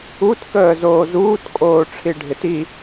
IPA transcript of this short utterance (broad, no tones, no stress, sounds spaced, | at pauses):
u t k əː z oː z uː t kʼ oː ʈ͡ʂʰ i ɖʱ ɪ t i